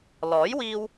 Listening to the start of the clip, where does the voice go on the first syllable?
rising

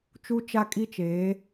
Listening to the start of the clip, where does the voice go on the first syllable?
high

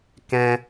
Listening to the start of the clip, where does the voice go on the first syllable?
high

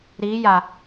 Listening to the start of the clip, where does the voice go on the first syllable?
rising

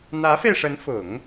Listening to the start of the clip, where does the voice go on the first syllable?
rising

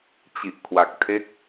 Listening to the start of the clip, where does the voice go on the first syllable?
low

